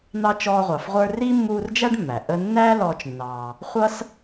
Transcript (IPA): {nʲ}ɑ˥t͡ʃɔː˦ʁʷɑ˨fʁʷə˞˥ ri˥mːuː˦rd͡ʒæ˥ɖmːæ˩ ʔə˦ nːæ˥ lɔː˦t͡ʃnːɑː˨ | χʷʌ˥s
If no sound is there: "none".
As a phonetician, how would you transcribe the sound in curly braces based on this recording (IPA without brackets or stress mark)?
n̪